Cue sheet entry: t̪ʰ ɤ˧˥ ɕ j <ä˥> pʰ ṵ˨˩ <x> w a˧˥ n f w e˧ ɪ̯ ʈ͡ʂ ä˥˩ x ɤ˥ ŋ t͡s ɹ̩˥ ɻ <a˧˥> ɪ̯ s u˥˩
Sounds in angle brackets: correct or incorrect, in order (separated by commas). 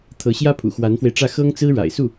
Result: correct, correct, incorrect